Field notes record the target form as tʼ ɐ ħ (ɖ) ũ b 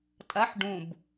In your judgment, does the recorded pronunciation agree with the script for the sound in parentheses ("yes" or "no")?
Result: yes